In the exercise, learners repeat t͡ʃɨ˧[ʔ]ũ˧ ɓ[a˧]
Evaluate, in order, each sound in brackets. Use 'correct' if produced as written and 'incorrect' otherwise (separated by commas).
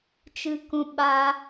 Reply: incorrect, correct